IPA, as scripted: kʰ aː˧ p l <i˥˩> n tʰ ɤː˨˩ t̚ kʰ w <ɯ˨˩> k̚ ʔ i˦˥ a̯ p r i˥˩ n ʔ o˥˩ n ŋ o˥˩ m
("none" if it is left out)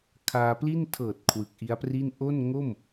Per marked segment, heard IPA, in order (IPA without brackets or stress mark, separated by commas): i˥˩, ɯ˨˩